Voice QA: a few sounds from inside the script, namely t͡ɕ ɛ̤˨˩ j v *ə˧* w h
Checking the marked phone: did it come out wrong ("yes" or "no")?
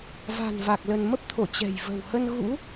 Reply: yes